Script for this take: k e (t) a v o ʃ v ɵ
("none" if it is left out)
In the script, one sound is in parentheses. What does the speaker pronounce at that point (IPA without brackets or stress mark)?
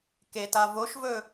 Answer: t